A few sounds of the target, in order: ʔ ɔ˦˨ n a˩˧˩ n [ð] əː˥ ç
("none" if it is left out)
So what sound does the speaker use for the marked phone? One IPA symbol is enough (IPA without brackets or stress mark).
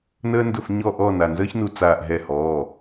z